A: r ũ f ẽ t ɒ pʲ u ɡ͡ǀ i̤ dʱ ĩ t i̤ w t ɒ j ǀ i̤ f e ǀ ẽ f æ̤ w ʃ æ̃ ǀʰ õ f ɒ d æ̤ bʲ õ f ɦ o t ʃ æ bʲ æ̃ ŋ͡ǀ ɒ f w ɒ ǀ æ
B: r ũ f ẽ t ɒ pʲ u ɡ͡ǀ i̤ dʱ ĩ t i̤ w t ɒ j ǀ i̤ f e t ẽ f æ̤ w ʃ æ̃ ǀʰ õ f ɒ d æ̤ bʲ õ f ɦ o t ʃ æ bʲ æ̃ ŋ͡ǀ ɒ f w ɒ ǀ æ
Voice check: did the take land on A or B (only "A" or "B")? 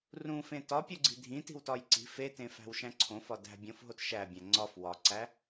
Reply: B